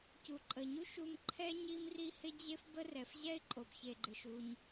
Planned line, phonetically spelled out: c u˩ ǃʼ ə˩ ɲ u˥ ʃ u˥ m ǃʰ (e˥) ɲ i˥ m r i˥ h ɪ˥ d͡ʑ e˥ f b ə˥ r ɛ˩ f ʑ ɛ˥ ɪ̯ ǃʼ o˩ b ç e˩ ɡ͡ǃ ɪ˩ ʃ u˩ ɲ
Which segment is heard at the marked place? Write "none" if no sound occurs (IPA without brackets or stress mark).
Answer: ɛ˥